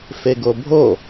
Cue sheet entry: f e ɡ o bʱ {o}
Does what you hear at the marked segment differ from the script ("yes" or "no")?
no